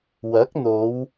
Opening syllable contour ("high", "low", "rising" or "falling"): rising